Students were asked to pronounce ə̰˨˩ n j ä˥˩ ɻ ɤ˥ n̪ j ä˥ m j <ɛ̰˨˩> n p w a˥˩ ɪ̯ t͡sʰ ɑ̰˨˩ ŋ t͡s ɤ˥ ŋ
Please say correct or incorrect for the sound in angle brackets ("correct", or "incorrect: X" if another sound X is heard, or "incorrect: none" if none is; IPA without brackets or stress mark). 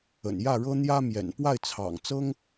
correct